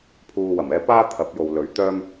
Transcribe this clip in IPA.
pʰ uː˨ w ɐ˨˩ m ɛː˧ p aː˥ t̪ʰ ɐ˨˥ p̚ j o˨ w l ɵ˨˥ ɥ t̪ œː˥ m

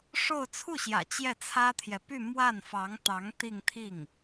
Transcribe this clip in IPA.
ʂ o˥˧ ʊ̯ t͡sʰ u˥˩ ɕ j ä̰˨˩ t͡ɕ j ɛ˥˩ t͡sʰ ä˥ t̪ʰ j ɛ˨ p y˥˧ m w a˥˩ n f ɑ˧˥ ŋ t̪ ɑ˧˥ ŋ t̪ i˥˧ ŋ t̪ʰ i˥˩ ŋ

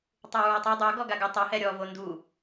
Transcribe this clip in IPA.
tˤ u ɹ ɔ tˤ a dˤ o ɡ ɔ ɡ a ɡ ʊ tˤ ʊ h ɛ ɾʲ ɔ v o n d u

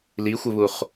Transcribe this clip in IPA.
l i xʷ ɘ β u χ

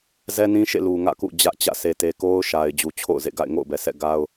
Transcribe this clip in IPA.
z ɛ˦ n ĩ˦ ʃ ḛ˦˨ l u˨ ŋ ä̰˦˨ k ṵ˦˨ d͡ʑ ä˦ ʔ t͡ɕ ä̰˦˨ sʰ e˨ t e˨ k o˦ ʊ̯ ʃ a˨ ɪ̯ d͡ʑ u˨ t͡ɕʰ o̰˦˨ ʊ̯ z ḛ˦˨ ɡ a̰˦˨ ɪ̯ ŋ o̰˦˨ ʊ̯ b ɛ˨ sʰ ɛ̰˦˨ ɡ a˦ ʊ̯

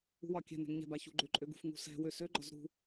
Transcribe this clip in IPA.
ṳ w ɒ kʲ ɛ̤ n ɛ̤ ŋ ɲ ɛ̤ b a ç ṳ ɡ͡ǃ ø ǃʼ ø ɡ ṳ f ŋ ṳ s ɛ̤ w ø s ø ɡ͡ǃ ɒ z ɾ ṳ

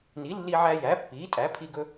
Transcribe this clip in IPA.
n i˩˥ lː i˧ ʕ æ˧ j æ˩˥ pː iː˩˥ tʼ æ˩˥ pʰ i˧ ɡ ɵ˧

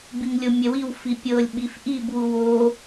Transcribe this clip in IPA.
b i ŋ lʲ o mʲ ɛ w i w f i pʲ ɤ lʲ ɓ i f ʔ i b w u w o

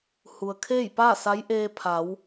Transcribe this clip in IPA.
h u˩ ə̯ kʰ eː˥˨ j p aː˥˨ s a˧˥ j ʔ eː˧ pʰ a˩˧ w

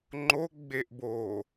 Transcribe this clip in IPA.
ŋ͡ǃ o ɡ͡b e ʔ b o

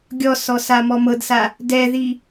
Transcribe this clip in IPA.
ɡʲ ɔ s ɔ s a m ɔ m ɤ d s a | d ɛ ð i

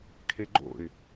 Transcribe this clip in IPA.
kʰ e ɡ͡ǃ o̰ ɪ̯

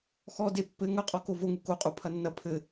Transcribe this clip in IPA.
x ɔ d e pː ɘ ŋ ɐ qʼ ɔ k o v o ŋ u k o qʼ u pʰ ɐ nː ɐ pʰ ɘ

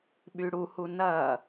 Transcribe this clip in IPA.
ɓ y ɽ u h u n ɐ

